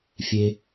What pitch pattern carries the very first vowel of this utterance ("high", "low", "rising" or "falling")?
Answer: high